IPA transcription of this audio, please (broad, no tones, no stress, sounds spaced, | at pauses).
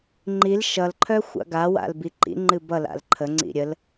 ŋ͡ǃ i l ʃ ʌ l ǃʰ œ xʷ a̰ ɡ a w a̰ l b i ǃ ḭ ŋ͡ǃ ɨ b ʌ l a̰ l ǃʰ ə ŋ͡ǀ ḭ ɾʲ ə l